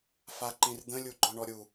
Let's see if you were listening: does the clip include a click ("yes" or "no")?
yes